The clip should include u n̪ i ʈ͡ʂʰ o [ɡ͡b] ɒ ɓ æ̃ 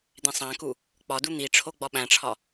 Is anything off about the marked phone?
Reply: no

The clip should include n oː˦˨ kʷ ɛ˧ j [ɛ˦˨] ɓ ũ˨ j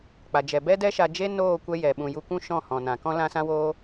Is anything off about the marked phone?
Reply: yes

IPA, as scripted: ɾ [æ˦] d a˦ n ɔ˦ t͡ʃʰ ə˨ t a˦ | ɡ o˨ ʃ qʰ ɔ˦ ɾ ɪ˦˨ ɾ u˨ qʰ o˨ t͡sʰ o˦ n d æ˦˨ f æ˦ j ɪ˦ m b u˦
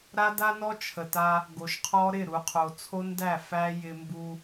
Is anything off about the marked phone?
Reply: yes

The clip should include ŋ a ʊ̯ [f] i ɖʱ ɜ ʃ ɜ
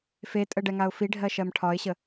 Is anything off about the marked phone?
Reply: no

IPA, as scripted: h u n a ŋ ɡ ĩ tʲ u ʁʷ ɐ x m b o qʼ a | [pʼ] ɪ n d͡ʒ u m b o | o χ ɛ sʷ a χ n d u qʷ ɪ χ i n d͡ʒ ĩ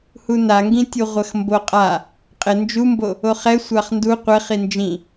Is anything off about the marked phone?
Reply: yes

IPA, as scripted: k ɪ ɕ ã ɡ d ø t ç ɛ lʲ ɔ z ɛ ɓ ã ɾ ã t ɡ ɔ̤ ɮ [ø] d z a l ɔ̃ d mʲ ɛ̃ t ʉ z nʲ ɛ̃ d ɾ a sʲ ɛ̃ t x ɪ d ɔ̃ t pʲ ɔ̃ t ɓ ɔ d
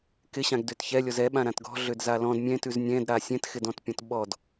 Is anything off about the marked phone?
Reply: no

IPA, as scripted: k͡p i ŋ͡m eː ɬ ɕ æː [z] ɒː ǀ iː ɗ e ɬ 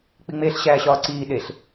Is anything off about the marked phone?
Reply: yes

